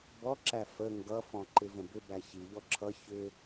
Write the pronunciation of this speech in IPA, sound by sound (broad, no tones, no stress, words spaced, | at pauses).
bɔǁæ fə ŋɡʌfɔ̃ ǃɪvə̃bʏbæ çiʎɔ ǁʰʌ çʏ